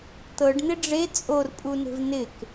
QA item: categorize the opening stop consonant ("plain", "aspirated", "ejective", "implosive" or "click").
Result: plain